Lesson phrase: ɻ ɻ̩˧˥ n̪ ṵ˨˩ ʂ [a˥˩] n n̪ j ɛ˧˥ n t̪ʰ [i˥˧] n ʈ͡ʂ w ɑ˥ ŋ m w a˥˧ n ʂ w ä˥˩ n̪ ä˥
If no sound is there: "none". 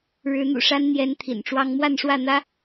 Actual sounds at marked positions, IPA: a˥, ḭ˨˩

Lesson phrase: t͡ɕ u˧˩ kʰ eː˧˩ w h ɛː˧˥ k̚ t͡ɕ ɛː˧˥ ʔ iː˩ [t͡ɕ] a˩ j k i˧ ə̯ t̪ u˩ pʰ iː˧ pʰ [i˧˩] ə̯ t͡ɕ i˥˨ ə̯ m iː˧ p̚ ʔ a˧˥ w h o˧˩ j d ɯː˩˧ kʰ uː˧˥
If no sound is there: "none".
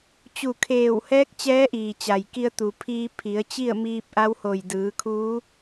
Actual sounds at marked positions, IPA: t͡ɕ, i˩˧

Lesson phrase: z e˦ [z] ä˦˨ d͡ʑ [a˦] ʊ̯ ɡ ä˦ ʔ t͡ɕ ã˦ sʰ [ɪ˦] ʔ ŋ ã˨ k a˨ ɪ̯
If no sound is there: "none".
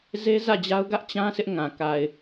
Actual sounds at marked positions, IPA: z, a˦, ɪ˦

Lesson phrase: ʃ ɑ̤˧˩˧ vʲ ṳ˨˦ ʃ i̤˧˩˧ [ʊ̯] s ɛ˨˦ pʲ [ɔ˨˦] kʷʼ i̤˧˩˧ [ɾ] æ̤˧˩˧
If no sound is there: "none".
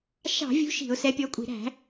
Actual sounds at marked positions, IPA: ʊ̯, ɔ˨˦, ɾ

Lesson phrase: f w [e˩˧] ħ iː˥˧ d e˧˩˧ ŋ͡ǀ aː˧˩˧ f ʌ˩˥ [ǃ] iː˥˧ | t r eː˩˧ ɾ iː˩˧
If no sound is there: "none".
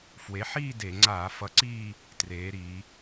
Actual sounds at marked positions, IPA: e˩˥, ǀ

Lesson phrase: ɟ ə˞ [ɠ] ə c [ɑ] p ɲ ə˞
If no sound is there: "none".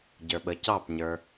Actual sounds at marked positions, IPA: ɓ, ɑ

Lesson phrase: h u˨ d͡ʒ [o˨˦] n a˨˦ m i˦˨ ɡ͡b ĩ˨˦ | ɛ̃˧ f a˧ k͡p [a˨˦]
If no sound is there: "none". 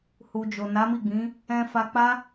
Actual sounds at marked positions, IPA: o˨, a˦

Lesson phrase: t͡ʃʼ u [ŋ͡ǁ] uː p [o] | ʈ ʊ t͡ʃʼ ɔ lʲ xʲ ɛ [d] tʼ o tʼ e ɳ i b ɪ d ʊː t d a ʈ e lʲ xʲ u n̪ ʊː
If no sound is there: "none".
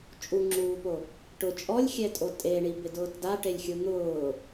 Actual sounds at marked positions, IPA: ŋ͡ǁ, o, none

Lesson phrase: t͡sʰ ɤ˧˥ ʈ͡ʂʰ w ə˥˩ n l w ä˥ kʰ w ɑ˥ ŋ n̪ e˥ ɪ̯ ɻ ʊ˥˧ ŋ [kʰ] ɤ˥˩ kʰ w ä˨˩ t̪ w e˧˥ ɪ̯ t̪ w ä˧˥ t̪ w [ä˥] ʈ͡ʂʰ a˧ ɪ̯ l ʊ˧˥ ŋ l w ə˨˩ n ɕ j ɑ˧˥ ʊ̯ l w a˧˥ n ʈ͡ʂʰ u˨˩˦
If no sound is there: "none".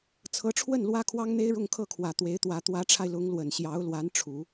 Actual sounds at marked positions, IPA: kʰ, ä˧˥

